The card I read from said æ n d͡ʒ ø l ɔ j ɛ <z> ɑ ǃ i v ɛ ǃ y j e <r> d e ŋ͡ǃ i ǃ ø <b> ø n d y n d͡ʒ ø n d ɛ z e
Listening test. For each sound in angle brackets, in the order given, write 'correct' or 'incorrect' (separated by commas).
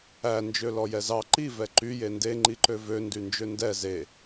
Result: correct, incorrect, incorrect